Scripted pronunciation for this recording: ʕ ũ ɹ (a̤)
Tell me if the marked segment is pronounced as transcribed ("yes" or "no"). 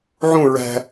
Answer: no